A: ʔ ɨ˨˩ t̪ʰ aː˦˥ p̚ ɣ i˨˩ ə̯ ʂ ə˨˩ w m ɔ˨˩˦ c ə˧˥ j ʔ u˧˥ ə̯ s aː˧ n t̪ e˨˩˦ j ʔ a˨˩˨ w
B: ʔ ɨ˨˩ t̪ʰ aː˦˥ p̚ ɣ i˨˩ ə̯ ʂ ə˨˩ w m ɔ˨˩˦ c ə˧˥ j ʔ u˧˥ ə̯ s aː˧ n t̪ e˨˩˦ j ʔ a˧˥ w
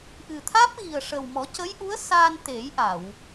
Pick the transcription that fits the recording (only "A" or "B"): A